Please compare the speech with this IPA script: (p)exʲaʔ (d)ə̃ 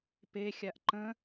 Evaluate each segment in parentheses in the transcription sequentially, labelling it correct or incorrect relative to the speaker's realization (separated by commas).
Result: correct, incorrect